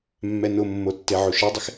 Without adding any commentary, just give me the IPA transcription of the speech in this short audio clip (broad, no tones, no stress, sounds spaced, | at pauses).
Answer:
mː ɛ n ʊ mː o tː e ʕ o ʃ ɛ dˤ ɪ x